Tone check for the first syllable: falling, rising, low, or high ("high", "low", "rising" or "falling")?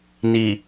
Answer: low